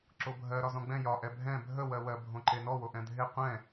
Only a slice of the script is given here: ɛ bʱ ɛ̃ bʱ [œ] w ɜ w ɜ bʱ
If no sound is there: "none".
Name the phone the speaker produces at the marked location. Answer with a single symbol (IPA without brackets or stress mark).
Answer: ə